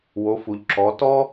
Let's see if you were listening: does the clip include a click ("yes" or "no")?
yes